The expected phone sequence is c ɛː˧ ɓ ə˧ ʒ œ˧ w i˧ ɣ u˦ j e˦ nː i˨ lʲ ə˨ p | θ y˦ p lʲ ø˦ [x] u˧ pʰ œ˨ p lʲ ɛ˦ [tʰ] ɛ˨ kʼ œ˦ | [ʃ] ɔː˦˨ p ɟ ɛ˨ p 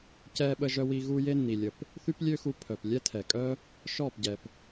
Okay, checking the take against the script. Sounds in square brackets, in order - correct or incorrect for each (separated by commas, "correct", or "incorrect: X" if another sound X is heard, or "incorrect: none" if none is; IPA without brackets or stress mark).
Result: correct, correct, correct